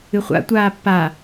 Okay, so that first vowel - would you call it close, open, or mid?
close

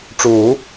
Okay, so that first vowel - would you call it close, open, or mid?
close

